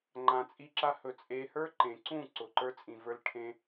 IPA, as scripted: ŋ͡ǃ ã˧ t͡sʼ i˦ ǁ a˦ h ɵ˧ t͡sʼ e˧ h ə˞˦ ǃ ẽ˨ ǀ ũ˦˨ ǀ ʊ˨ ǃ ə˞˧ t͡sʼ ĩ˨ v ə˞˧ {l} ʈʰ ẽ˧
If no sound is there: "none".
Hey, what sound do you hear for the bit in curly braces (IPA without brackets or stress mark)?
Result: l